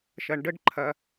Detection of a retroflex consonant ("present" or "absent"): present